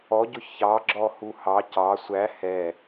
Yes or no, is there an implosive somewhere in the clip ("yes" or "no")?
no